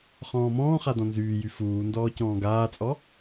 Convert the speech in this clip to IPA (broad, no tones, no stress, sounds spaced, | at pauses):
χ ɔ̃ː m ɔ̃ː χ a d ɔ̃ n z yː j y f uː n d ɔː c ɔ̃ː ɡ aː t͡sʼ ɔ